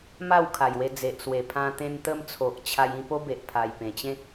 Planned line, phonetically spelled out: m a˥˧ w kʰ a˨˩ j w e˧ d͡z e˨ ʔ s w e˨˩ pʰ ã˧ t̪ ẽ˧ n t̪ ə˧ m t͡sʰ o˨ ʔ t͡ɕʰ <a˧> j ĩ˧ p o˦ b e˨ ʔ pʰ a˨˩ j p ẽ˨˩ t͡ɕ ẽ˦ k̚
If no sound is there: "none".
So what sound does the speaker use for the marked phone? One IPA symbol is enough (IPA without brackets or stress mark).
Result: a˧